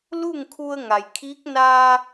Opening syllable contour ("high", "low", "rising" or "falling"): falling